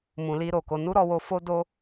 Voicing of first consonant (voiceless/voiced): voiced